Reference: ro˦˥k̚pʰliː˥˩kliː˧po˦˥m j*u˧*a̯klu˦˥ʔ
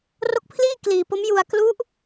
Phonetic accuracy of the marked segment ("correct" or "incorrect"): correct